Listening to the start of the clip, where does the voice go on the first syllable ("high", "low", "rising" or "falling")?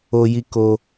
high